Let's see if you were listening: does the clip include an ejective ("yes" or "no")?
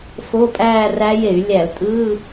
yes